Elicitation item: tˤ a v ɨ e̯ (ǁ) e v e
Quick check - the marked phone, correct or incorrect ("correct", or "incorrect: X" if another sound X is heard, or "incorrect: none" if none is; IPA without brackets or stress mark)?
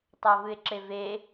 correct